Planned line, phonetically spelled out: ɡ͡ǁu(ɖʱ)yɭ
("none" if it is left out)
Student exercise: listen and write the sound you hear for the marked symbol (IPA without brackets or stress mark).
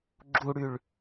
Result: ɽ